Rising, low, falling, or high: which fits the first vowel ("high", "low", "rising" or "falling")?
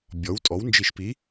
rising